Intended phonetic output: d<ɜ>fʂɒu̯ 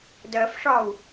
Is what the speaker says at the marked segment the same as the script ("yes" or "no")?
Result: yes